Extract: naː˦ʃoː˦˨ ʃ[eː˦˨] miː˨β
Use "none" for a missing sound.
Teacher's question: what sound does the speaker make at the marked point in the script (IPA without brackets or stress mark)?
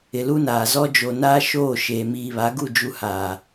eː˨